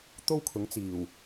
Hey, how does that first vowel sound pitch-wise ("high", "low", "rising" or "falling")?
high